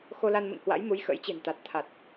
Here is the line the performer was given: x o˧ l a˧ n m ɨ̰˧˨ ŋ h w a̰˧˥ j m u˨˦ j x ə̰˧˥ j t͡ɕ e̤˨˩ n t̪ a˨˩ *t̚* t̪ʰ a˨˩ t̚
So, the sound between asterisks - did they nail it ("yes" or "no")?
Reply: yes